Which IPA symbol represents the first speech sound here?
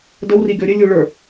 d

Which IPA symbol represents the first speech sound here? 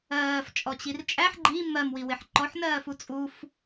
ɜː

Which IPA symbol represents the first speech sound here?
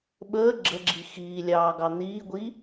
ɓ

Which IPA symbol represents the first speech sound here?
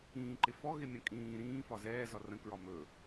ĩː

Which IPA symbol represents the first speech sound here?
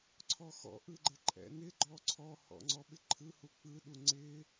ǀʰ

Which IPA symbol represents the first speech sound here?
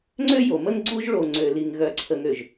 ŋ͡ǀ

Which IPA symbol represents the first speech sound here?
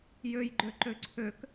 j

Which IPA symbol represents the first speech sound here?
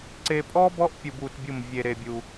ǀ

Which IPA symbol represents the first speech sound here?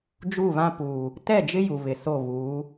d͡ʒ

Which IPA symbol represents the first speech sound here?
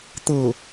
t̪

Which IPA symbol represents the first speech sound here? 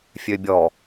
fʲ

